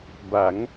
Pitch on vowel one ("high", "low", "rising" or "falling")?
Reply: rising